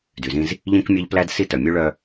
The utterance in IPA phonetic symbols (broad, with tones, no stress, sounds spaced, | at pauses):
d y˨ z ĩ˦ z | ʎ ĩ˦ k mʲ ɑ˦ ʎ p l æ˦ d s i˦ t œ˨ mʲ ʉ˦ ɭ œ˦